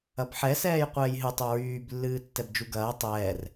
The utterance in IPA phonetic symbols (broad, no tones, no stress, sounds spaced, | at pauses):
ɐ b ħ ɛ s ɛː j qʷ ɛː j ɦ ɨ tˤ u ɹ yː b lː ɨː tː ɛ b d͡ʒ u ɡ ɐː tˤ ɛː r